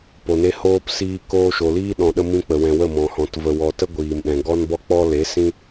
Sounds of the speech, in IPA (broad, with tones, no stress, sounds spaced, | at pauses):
p o˨ n e˧ h oː˧ p s iː˧ k oː˧ ʃ o˨ l iː˦ ɗ ɔ̃˨ ɗ ə˧ m ĩ˦ k͡p ə˨ w ɛ̃˨ w ə˦˨ m ɔ̃˨ h ɔ̃˨ t v ə˨ w ɔ˨ t ə˦ ɡʷ iː˨ m ɗ ɛ̃˨ ɡ ɔ˦ n b ɔ˦ k͡p ɔ˦ l e˨˦ s ĩ˦